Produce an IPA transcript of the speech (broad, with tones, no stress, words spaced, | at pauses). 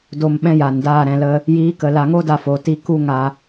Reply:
do˧mɓɛ̃˦ja˨ndaː˦˨ ɾɛ̃˧lə˦ | jiː˨˦kə˨la˨ŋo˦ da˦fo˨˦ti˦ ku˦ŋa˧